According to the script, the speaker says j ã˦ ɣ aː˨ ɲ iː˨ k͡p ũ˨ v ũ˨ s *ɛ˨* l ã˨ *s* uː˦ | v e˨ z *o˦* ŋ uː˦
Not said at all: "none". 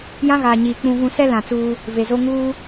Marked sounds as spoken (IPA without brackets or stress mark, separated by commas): ɛ˦, t͡s, o˦